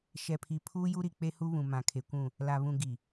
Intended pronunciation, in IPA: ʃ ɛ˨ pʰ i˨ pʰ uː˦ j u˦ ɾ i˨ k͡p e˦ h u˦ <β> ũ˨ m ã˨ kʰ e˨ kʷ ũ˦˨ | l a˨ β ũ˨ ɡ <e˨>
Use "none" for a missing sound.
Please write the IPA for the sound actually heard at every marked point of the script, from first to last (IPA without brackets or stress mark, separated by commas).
β, i˨